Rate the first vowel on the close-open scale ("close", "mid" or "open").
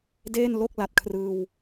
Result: mid